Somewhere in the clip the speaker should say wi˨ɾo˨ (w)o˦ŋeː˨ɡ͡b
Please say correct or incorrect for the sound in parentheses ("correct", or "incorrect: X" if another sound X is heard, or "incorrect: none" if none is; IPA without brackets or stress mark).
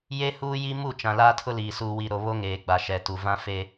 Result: incorrect: β